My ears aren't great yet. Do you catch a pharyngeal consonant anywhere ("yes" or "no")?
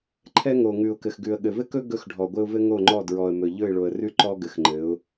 no